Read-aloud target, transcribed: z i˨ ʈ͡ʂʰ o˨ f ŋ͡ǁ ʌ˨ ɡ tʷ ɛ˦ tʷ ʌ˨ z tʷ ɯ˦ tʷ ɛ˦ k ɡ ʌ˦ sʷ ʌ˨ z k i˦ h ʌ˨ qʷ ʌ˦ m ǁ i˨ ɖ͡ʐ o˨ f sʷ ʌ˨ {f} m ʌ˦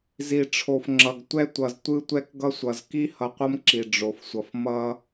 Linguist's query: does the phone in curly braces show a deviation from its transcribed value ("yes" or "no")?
no